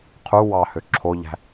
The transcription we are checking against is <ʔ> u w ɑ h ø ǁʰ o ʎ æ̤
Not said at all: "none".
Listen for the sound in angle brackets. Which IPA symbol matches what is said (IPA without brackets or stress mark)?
qʰ